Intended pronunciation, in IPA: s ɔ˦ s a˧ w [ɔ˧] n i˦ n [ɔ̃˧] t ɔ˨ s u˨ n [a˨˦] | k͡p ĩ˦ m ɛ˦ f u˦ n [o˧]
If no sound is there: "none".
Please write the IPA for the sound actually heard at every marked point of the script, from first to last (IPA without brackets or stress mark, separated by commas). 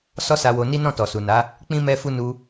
o˧, ɔ̃˦˨, a˨˦, u˧